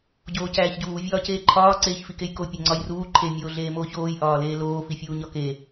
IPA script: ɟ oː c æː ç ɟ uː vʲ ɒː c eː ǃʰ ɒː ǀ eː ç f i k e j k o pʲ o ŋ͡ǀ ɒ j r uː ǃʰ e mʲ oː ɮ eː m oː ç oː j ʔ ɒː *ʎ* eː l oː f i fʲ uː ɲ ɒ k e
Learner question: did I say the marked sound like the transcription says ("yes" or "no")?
no